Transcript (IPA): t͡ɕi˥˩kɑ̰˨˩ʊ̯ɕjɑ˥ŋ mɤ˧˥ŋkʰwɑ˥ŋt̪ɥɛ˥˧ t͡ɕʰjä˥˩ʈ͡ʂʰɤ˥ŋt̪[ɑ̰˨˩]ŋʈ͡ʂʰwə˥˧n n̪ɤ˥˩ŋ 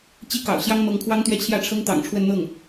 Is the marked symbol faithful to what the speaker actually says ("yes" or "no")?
yes